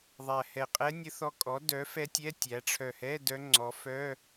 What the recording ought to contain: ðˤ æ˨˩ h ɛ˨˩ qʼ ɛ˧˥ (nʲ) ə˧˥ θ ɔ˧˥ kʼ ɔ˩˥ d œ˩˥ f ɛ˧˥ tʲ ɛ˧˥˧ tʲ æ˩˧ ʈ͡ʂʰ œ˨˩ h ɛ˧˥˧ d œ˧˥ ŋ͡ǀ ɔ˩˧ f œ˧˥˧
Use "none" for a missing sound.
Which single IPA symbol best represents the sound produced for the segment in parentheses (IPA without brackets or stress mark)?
nʲ